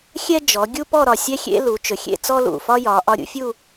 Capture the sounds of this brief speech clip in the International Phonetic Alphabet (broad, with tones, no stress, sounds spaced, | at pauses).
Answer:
xʲ ɛ˥ d͡ʒ ɔ˩˧ ɡʲ u˥ p ɔ˥˧ ɾ ɒ˧˩ sʲ ɛ˥ xʲ ḛ˥ l u˩˧ t͡ʃ ɵ˩˧ xʲ ḛ˥˧ t͡s ɔ˥ l ṵ˧˩ f ɒ˥ j ɒ˩˧ ʔ ɒ˧ ɾʲ ṵ˥ fʲ u˥˧